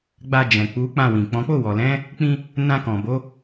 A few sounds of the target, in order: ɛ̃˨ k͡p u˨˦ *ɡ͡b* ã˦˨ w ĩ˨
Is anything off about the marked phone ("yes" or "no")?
yes